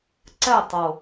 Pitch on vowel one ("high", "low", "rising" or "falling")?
falling